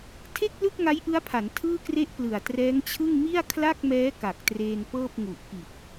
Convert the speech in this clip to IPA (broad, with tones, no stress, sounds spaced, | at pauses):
tʰ e˥˩ k̚ l ɯ˥˩ k̚ ŋ a˦˥ j ʔ ɯ˦˥ a̯ pʰ a˩˦ n tʰ ɯː˥˩ k r e˥˩ ʔ p l ɯ˨˩ a̯ t r ɛː˦˥ ŋ t͡ɕʰ ɯ˥˩ ŋ m i˥˩ a̯ kʰ l a˥˩ k̚ m ɛː˦˥ k a˨˩ k̚ t r eː˧ n p ɤː˥˩ p̚ ŋ u˨˩ ʔ k i˨˩ t̚